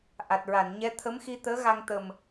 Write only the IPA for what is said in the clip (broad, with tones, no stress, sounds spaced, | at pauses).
ʔ a˨˩ t̚ ɹ a˨˩˨ n ɲ ɛ˧˥ t̪ʰ ə˧˥ m x i˧ t̪ əː˧˥ ɣ a˧ ŋ t̪ ə˨˩ m